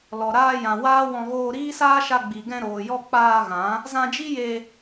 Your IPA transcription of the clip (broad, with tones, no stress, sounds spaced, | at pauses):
l ɔ˨ ɾ aː˧ j ã˨ w aː˦ w ɔ̃˧ ɣ oː˧ ɾ iː˦ s aː˦ ʃ a˧ ɡ͡b i˨ ɡ ɛ̃˧ ɾ oː˨ j ɔ˧ k͡p aː˧ ɣ ã˨˦ | z ã˧ d͡ʒ i˦ j e˧